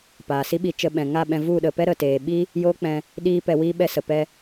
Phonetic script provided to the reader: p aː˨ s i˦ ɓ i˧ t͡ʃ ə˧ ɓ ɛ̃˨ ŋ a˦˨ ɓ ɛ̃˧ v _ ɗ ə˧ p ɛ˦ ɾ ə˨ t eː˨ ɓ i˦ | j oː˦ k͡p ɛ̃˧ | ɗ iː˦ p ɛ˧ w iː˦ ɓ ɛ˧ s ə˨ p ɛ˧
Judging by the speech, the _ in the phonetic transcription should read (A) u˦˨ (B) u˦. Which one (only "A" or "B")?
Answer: A